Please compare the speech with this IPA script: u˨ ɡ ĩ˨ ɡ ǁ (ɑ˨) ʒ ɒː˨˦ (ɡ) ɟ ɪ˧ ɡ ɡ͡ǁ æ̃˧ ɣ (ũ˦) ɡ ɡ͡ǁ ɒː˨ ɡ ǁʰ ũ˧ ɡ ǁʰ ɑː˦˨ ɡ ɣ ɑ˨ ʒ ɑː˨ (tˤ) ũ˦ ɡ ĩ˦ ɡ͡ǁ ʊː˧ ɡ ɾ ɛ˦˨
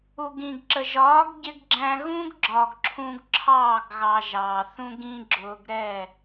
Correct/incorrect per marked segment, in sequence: incorrect: ə˨, correct, correct, incorrect: θ

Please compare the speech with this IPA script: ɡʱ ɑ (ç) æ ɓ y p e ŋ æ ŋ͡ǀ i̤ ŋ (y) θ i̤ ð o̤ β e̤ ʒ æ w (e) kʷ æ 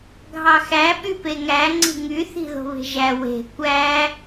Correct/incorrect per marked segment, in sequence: incorrect: x, correct, incorrect: e̤

